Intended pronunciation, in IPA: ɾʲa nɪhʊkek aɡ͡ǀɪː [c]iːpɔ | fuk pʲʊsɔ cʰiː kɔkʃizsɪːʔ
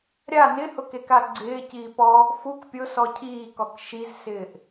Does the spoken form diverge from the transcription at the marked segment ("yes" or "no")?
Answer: no